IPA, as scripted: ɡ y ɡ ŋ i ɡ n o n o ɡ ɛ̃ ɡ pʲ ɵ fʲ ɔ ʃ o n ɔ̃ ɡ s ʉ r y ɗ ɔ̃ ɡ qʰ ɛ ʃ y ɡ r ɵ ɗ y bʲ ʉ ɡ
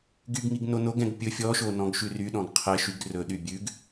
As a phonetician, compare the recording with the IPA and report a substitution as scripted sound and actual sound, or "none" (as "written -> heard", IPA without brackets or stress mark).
s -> ʃ